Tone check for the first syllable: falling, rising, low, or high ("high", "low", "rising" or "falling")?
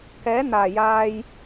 rising